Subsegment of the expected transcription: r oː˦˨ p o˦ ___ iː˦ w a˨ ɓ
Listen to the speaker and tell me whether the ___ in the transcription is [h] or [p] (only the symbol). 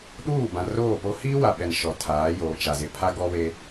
h